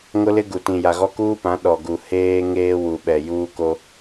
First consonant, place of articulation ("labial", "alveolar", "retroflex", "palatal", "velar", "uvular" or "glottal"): velar